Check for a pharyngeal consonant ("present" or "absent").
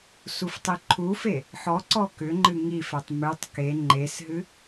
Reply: present